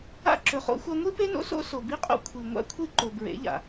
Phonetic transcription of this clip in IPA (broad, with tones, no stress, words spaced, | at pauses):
a̰˦ ǁɵ˨χo̰˦xʷa˦ ŋʷi˦pe˦no̰˦so̰˦ so˨bi˦qʼo̰˦ kʷʰi˨ ŋʷa̰˦kʷʰi˦ ǃo˨bɹḛ˨˦ʎa̰˨